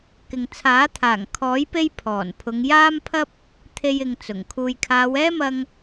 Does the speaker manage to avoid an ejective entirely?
yes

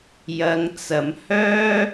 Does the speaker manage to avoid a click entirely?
yes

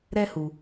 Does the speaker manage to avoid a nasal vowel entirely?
yes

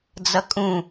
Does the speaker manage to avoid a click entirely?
yes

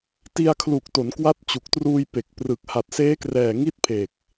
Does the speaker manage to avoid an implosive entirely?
yes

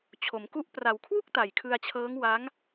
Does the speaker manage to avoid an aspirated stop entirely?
no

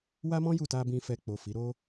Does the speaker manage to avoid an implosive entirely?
yes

